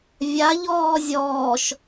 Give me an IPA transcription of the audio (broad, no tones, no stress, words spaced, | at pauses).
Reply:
vʲaʎɔː zʲɔːʃ